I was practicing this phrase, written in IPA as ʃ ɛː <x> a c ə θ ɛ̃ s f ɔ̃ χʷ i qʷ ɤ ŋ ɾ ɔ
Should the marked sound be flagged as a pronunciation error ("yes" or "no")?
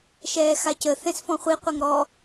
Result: no